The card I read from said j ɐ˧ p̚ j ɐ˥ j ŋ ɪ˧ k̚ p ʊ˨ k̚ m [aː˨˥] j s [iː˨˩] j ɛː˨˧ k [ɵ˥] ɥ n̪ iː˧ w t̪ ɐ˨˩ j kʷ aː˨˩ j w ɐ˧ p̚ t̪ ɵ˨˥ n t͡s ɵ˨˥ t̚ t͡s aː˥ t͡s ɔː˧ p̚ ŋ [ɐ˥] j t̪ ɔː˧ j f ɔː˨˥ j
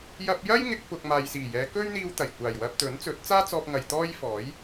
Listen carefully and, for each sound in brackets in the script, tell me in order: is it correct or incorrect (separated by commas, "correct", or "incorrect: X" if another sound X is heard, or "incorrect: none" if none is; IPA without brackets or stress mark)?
incorrect: aː˨, correct, correct, incorrect: ɐ˨